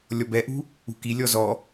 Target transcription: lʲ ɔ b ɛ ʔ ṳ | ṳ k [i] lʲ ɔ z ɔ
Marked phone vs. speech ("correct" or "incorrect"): correct